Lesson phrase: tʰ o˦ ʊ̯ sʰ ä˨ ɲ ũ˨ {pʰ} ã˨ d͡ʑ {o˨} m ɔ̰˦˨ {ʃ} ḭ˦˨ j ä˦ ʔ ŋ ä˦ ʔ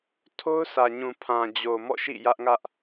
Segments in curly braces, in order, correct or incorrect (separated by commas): correct, correct, correct